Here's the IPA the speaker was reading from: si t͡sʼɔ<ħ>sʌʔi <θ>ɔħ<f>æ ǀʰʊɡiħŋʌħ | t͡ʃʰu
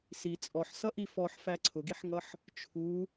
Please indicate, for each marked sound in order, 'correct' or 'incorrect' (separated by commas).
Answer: correct, incorrect, correct